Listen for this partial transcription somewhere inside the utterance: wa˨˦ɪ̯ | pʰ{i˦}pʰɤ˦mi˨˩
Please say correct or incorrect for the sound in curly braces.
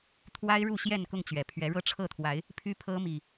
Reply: incorrect